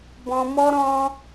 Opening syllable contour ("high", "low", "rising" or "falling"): high